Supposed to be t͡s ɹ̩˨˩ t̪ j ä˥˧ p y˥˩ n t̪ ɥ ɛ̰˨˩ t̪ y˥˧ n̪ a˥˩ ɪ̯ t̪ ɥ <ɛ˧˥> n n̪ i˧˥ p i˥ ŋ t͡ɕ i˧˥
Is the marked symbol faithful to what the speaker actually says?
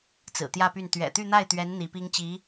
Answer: yes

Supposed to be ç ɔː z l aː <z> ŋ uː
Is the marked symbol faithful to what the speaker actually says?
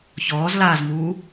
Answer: yes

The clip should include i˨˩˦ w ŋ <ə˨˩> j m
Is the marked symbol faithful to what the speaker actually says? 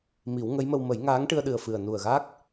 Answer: no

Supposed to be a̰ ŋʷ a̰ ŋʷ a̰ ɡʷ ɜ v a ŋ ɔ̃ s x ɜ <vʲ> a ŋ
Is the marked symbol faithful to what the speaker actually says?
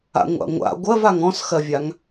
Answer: yes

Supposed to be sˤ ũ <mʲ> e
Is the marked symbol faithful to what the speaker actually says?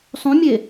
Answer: yes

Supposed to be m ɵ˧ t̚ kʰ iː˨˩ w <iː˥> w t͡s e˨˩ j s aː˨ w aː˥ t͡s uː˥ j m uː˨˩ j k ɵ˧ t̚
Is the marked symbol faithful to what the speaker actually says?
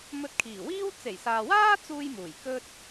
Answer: yes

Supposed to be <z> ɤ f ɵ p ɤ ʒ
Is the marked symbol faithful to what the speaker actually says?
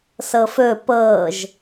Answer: no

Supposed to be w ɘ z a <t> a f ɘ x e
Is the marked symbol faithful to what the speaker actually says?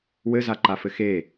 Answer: no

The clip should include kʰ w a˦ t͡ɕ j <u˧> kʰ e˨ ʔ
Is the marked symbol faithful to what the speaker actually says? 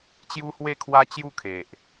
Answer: no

